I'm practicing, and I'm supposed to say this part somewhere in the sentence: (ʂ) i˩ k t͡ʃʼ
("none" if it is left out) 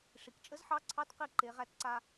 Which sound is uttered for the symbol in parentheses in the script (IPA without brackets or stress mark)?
ʂ